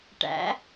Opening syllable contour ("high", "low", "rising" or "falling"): rising